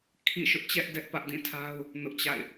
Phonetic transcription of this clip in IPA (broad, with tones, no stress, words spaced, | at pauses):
kʰḭ˦˨ʃʊ˦ʔt͡ɕɛ˦ʔ dɛ˦ʔpä˦ʔ dĩ˦˨tʰa˦ʊ̯ | nʊ˦ʔt͡ɕa̰˦˨ɪ̯